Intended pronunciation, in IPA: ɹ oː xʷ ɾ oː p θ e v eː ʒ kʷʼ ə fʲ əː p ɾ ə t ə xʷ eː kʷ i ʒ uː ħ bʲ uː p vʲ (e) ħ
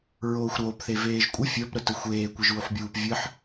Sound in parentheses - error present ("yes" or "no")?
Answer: yes